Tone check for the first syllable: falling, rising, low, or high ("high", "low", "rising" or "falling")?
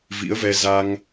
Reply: rising